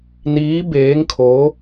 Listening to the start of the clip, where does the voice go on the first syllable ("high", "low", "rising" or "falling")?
rising